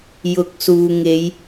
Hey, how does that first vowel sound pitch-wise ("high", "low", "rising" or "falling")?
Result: rising